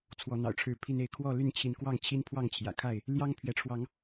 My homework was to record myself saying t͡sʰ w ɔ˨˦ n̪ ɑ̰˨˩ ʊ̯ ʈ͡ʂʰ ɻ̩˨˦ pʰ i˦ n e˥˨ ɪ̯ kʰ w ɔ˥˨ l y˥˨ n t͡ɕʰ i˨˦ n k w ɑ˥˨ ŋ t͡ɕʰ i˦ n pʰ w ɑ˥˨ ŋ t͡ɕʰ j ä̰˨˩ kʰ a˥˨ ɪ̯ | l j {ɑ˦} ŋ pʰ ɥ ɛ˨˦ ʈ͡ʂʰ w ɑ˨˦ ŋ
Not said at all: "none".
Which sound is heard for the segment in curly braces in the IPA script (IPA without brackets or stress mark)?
ɑ˦